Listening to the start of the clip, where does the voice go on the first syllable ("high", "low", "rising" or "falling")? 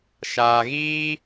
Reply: low